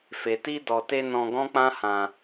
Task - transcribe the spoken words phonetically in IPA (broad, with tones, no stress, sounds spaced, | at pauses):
f e˨ t i˧ d ɔ˨ t e˧ n ɔ̃˧ ɡ ɔ̃˦ k͡p ã˦ h ã˧